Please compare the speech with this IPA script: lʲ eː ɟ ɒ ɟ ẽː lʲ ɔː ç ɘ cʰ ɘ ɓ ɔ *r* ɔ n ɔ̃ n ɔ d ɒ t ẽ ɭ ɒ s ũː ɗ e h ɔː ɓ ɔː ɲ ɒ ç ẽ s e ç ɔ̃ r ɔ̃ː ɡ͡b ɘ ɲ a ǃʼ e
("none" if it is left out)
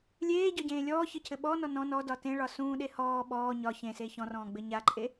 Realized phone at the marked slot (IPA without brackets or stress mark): n